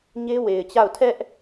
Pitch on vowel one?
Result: high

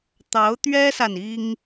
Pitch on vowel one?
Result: rising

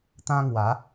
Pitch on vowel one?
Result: high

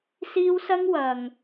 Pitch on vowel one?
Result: high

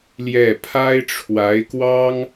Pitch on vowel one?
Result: falling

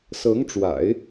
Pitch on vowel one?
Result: rising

